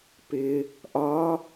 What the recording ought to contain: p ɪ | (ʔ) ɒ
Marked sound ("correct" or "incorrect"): correct